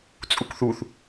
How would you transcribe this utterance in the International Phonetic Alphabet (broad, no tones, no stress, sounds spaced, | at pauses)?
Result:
t͡sʼ u k θ u θ